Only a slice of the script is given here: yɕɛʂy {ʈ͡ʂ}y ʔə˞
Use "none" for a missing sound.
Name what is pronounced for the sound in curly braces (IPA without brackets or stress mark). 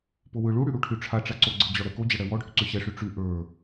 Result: ʈ͡ʂ